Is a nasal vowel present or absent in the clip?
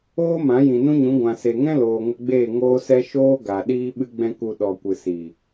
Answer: present